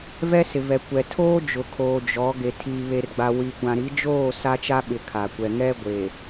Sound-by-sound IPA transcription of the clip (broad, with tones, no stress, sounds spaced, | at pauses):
v ɛ˦ s ɪ˨ v ɛ˨ kʷ ɛ˨ tʰ oː˦ d͡ʒ ʊ˨ kʰ oː˨ d͡ʒ ɔ˨˦ ɡ e˨ tʰ iː˨ β e˨ r ɡ͡b a˨ w i˨ kʷ ã˨ ɾ i˨˦ d͡ʒ oː˦˨ s a˦ t͡ʃ a˦ ɓ ɪ˨ kʰ a˨ kʷ ɛ˨ ŋ ɛ˦ ɡʷ e˨